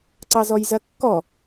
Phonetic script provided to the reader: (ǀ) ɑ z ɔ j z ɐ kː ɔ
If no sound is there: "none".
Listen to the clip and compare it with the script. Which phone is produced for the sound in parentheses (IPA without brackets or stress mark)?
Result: ǀ